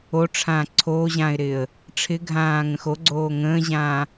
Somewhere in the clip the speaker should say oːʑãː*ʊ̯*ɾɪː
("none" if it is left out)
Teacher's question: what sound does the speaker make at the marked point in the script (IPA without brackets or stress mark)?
ɪ̯